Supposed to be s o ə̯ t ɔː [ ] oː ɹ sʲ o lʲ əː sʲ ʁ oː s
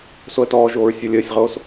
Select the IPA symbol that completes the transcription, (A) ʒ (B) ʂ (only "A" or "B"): A